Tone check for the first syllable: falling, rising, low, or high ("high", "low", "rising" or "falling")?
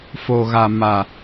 low